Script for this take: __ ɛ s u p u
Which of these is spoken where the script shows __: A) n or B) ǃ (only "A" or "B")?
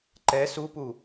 B